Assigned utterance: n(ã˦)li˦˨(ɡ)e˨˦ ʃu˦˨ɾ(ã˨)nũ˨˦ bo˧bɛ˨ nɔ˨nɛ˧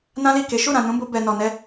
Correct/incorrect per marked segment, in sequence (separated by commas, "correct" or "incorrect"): correct, incorrect, correct